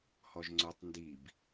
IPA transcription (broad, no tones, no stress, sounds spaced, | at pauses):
h ɔ ʒ ŋ͡ǀ o tˤ n d i b